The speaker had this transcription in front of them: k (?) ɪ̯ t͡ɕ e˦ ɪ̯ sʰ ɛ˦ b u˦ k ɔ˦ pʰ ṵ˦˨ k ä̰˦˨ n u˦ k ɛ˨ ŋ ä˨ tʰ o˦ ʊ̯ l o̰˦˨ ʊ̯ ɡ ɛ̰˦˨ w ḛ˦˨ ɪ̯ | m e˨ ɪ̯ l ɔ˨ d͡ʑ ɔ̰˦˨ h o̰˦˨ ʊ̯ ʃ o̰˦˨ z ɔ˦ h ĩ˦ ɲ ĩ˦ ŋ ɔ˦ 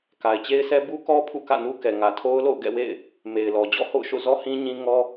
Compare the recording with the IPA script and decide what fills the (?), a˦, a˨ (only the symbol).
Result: a˨